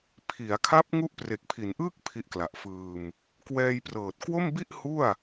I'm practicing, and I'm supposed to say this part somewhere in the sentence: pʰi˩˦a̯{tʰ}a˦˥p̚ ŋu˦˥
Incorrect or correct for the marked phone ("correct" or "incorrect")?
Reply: incorrect